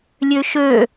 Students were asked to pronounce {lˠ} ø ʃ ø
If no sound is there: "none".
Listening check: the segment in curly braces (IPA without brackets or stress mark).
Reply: lʲ